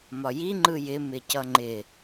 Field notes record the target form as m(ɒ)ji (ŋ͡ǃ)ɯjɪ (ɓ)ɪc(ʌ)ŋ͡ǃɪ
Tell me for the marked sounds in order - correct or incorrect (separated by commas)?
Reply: correct, correct, incorrect, correct